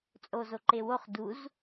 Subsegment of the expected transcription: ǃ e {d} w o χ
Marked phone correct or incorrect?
incorrect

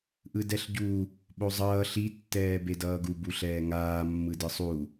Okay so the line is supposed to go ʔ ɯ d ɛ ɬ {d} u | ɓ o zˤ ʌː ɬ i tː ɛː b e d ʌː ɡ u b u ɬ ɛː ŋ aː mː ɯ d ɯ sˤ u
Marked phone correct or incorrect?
incorrect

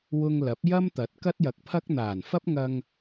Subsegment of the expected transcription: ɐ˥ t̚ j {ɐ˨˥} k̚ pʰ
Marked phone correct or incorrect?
incorrect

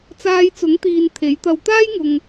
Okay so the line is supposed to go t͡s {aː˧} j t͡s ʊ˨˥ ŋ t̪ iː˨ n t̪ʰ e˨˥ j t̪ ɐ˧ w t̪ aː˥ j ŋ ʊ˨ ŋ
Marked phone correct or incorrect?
correct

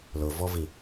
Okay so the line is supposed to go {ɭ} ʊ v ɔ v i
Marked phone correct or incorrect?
incorrect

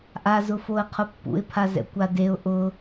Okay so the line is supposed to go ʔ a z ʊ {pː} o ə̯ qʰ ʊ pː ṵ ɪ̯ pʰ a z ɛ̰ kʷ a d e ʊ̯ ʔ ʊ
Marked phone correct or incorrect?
incorrect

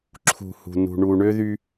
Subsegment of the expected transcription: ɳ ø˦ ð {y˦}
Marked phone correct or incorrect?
correct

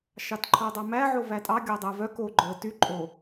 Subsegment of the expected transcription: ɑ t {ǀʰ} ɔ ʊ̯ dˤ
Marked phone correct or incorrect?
incorrect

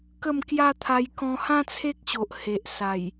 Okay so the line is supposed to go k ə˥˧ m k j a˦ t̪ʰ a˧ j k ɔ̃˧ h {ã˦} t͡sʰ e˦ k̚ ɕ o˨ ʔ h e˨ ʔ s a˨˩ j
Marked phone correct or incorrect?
correct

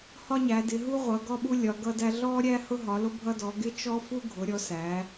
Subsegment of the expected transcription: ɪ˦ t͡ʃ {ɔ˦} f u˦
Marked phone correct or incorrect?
correct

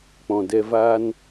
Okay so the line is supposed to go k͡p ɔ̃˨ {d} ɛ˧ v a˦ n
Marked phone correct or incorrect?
correct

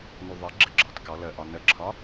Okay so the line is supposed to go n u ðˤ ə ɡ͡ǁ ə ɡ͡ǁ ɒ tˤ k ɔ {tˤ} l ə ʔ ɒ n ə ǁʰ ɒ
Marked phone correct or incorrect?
incorrect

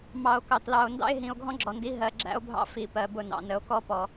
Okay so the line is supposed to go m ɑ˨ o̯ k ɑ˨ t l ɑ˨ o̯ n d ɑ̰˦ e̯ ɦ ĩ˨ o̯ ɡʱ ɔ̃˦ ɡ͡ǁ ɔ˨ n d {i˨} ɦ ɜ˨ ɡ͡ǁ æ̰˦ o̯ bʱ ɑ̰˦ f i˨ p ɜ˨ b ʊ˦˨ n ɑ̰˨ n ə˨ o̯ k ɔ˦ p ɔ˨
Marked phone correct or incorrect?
incorrect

